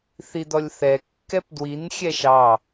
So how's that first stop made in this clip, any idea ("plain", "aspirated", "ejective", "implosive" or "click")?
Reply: plain